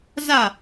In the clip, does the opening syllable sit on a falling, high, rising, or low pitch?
falling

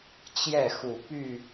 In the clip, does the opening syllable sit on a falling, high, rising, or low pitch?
falling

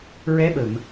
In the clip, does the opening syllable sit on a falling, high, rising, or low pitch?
rising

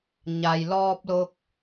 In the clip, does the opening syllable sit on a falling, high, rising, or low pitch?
low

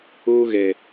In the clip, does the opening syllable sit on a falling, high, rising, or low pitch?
high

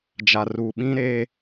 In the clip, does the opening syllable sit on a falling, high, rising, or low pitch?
low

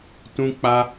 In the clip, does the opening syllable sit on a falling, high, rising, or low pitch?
high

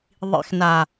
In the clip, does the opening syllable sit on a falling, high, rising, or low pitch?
low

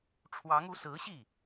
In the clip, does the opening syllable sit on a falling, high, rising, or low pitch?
rising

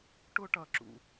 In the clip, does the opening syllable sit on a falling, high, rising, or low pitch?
high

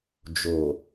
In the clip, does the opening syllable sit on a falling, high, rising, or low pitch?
low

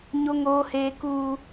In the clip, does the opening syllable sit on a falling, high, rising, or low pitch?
high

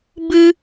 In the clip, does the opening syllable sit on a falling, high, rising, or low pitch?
high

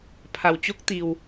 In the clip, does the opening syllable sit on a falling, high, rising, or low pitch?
low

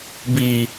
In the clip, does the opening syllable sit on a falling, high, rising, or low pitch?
low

